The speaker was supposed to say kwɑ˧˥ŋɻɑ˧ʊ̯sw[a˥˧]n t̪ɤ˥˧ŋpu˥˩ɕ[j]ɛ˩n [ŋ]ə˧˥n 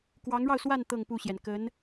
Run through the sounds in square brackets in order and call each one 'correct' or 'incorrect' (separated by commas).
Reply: correct, correct, incorrect